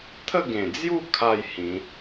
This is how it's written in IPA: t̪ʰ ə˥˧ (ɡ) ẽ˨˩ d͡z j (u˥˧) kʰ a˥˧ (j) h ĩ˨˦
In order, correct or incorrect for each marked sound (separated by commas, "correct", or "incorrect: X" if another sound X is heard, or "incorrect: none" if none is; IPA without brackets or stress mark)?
correct, correct, correct